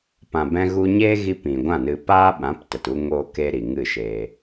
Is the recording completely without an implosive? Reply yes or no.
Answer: no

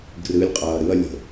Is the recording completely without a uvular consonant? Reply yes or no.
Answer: no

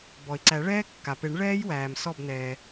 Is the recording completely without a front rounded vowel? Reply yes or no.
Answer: yes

